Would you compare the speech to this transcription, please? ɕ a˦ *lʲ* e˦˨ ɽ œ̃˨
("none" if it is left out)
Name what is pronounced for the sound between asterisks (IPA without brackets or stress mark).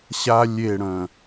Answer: lʲ